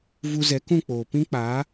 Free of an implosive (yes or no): yes